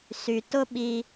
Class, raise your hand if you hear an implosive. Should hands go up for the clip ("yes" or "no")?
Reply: yes